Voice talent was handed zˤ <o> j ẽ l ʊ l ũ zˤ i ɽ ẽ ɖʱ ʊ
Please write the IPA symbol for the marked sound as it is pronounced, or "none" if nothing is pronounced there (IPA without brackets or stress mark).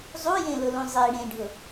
u